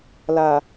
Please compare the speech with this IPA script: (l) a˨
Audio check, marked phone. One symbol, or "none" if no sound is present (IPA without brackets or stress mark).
l